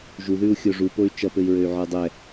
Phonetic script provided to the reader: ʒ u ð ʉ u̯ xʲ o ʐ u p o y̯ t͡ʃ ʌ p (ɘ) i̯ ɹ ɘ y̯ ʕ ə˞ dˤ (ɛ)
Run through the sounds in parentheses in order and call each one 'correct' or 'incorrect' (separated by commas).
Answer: correct, correct